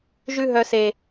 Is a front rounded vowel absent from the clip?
no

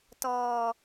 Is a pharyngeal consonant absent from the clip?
yes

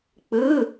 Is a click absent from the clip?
yes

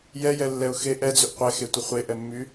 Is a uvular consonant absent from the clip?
no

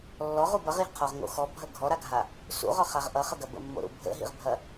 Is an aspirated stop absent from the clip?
no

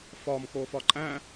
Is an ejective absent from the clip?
no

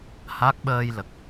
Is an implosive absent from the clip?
no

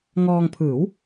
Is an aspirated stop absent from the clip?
no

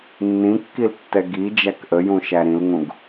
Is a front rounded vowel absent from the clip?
yes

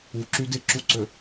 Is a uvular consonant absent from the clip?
yes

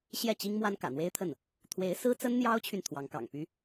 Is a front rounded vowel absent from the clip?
no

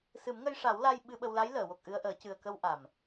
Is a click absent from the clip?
yes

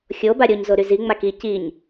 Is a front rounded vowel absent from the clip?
no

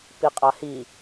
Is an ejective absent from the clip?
no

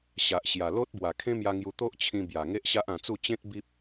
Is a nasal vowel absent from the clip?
no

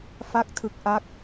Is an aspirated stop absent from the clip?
no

